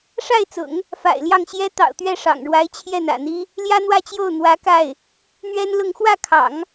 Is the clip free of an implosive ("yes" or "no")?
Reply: yes